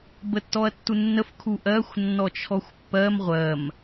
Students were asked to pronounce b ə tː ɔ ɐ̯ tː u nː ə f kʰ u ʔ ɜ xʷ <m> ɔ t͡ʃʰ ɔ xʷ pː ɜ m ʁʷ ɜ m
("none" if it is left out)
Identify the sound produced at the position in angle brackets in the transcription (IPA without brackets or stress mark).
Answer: nː